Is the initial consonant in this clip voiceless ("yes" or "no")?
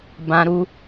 no